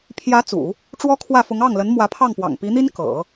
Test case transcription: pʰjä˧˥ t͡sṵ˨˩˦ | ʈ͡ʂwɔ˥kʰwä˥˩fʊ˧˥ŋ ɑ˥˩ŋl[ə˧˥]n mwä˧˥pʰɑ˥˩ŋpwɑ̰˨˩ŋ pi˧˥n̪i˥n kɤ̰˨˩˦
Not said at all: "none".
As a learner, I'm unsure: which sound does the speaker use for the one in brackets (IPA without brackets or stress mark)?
ə˧˥